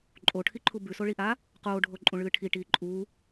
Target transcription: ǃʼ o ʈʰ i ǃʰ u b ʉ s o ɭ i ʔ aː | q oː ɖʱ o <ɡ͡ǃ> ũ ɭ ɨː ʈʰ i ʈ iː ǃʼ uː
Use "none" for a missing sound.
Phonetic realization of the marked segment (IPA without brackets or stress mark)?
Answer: ǃʼ